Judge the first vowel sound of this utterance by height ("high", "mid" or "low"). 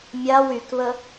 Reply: low